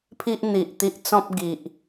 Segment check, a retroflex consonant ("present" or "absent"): absent